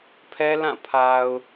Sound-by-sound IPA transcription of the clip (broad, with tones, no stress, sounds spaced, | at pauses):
pʰ ɛ˦ l ã˦˨ pʰ a˨ ʊ̯